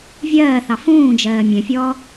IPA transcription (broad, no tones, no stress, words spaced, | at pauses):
vʲɜːθɑ fũːd͡ʒɜː mʲɛ̃fʲɔː